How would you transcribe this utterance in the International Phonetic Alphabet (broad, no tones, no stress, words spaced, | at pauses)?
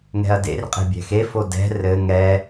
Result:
ŋɛ̤ɐ̯dḛrqʼe̤ bʲɛ̤xefo dɛ̤ rɘ ŋɛ